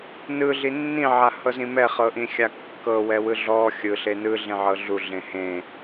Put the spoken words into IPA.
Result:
n ɯ ɮ i nː ĩ ʕ a h ɤ z ĩ m ɛ χ ɤ ʔ ĩ xʲ a kː ɤ w ɛ w ɯ ɮ ɔ xʲ ɯ ɬ e n ɯ ɮ ẽ ʕ ɤ ɮ u ɮ ẽ h ẽ

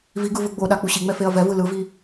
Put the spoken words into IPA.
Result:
v i ɡ ɯ v ɯ ɡ͡b o ɗ a k͡p u ɕ i ŋ͡m ɛ f e ɐ̯ v ɛ v ɯ l ɯ v i

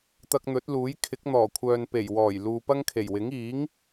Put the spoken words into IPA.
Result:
t̪ ɐ˧ k̚ n̪ ɵ˨˥ t̚ l uː˨˥ j kʰ ɪ˨˥ k̚ n̪ ɔː˨˩ kʷʰ œː˨ n p e˨˩ j w ɔː˨˩ j l uː˨ p ɐ˥ ŋ kʰ e˨˩ j w ɪ˨˥ ŋ iː˨˥ ŋ

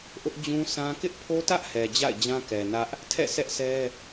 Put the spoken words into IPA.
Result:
ʔ ʊ˦ ʔ d͡ʑ ũ˦ sʰ ã˦ k ɪ˦ ʔ pʰ o˦ t ä˦ ʔ h ɛ˨ d͡ʑ a̰˦˨ ɪ̯ d͡ʑ ã˦ k ɛ˨ n ä˦ ʔ | tʰ ɛ̰˦˨ s ɛ˦ ʔ s ɛ˦

